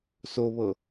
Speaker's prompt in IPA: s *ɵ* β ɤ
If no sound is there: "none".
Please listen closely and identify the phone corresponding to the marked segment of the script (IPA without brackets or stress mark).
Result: o